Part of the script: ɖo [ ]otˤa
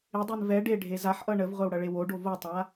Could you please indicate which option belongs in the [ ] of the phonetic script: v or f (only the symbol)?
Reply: v